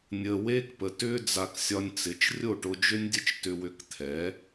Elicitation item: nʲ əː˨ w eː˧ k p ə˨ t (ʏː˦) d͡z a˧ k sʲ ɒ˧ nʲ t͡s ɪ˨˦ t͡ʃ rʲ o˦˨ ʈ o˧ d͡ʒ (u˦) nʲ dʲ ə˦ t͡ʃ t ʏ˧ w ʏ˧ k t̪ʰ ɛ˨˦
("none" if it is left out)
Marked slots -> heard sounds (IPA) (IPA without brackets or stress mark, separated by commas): ʏː˦, ʏ˦